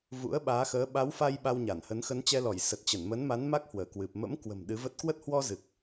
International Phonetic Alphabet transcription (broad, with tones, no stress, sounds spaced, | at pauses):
v ṵ˧˥ ə̯ ɓ aː˨˦ x əː˨˦ ɓ a˨˦ w f a˧ j ɓ a˧ w ɲ a˧˩ n h ə˨˦ n x ə˨˦ n t͡ɕ ɛ˧ l ɔ˧˩ j s ə˨˩ t̚ t͡ɕ ə˧˩ n m ə˨˦ n m a˨˦ n m a˦˥ k̚ h w əː˧˩ k w ɨ˨˩ p̚ m ə̰˧˥ m k w ə̤˨˩ m ɗ ɨ˨˦ v ə˦˥ t̚ k w ə˦˥ t̚ h w ɔ˧ z ɨ˨˩ k̚